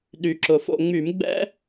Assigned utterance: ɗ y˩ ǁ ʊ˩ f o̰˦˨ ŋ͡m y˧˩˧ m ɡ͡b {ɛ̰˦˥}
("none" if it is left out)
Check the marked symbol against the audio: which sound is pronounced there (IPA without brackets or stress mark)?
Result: ɛ̰˦˥